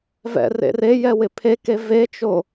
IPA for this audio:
v ɛ̰ r ḛ r e j ɛ w ɪ pʰ e k e v e t͡ʃ o

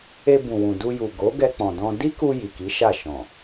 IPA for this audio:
e˧ b ũ˨ w ũ˨ d u˧ j u˨ ɡ o˨˦ ɡ ɛ˧ k͡p ɔ̃˨ d ɔ̃˧ d i˦ k u˧ j i˨ k i˨˦ ʃ a˦˨ ʃ ɔ̃˨

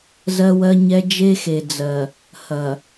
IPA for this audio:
z ɜ˦ w ɜ˦ ɲ ɛ˦ d͡ʒ e˦ x e˨ d͡z ɜ˨ | h ɐ˨

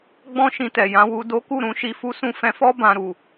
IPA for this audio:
ɡ͡b ɔ̃˦ ʃ ĩ˧ t ɛ˨ j ã˨˦ w u˧ d o˦ k u˦˨ ɾ ũ˧ ʃ i˧ f u˦ s ũ˦˨ f ɛ̃˧ f ɔ˦ b ã˧ ɾ u˨

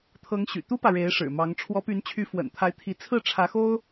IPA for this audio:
t̪ʰ ɤ˧˥ ŋ ɕ y̰˨˩ t̪ u˥ p ä˨ ɻ e˧˥ ɪ̯ ʂ ɻ̩˨˩ m ɑ˧˥ ŋ ʈ͡ʂʰ w ɔ˧˥ p y˧˥ n t͡ɕʰ y˧˥ f w ə̰˨˩ n t̪ʰ a˧˥ ɪ̯ t̪ʰ i˧˥ t͡sʰ ɹ̩˥˩ ʈ͡ʂʰ ä˧˥ x o˥ ʊ̯

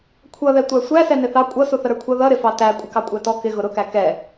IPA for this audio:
kʷʰ ʌ ð ɛ tʷ æ sʷ æ s ɛ n ɪ θ ɑ kʷʼ ʌ s u θ ə ɾ ə˞ kʷʰ ʌ ð ʌ ɾ ɪ f ɑ t æ kʷʼ ɪ k ɑ kʷʼ æ t ɔ k ɪ ɣ ʊ ɾ ʊ k æ k ɛ

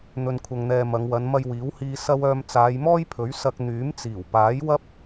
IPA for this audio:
n̪ ɵ˧ n kʷʰ ɐ˧ ŋ n̪ ɛː˧ m ɐ˨˧ ŋ w ɐ˨˧ n m ɐ˧ j w iː˨˥ w h iː˧ s ɐ˥ w œː˧ m t͡s aː˨˧ j m ɔː˥ j pʰ ɵ˨˥ ɥ s ɐ˧ k̚ n̪ yː˨˥ m t͡s iː˨˩ w p aː˨˥ j w ɐ˥ p̚

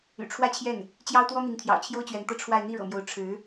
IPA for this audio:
y̰˨˩ ʈ͡ʂʰ w ä˥ t͡ɕʰ j ɛ˥˩ n | t͡ɕ j ɑ˥ ʊ̯ t̪ w ɔ˥ n̪ i˧˥ ŋ t̪ʰ j ɑ̰˨˩ ʊ̯ t͡ɕʰ j o˥ ʊ̯ t͡ɕ ɥ ɛ˧˥ n t̪ ɤ˥˧ ʈ͡ʂʰ w a˥˧ ɪ̯ n̪ i˥˩ ɻ ɤ̰˨˩ m j o˧˥ ʊ̯ ʈ͡ʂʰ ɻ̩˧˥

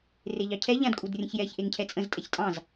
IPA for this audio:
r e ʎ ɑ cʰ ɛ ʎ ã d kʼ u d rʲ ə̃ ç j ɛ ç ʔ e ŋ cʰ ɛ t͡sʼ ə̃ z tʼ ɛ ç tʼ ɑ̃ z

